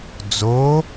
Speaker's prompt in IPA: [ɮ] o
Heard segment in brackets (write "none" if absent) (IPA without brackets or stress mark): d͡z